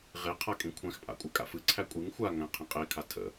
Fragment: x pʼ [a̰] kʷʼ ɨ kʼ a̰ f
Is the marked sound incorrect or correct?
correct